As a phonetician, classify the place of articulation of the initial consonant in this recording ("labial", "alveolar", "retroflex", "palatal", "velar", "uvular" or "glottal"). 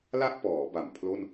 alveolar